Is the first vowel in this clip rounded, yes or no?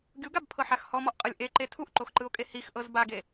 yes